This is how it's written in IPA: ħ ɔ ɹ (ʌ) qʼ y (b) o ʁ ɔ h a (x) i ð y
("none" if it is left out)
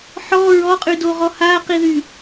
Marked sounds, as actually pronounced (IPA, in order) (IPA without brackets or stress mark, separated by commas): ɔ, d, q